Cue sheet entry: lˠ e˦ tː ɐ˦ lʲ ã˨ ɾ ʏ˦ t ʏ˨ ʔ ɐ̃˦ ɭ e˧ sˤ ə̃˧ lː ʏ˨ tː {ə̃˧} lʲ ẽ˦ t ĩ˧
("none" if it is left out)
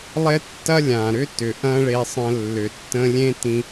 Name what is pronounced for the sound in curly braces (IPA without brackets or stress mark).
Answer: ə̃˧